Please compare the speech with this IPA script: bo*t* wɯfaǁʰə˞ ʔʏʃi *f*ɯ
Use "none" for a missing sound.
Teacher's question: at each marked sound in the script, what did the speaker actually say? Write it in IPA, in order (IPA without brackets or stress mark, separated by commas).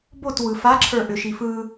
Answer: t, f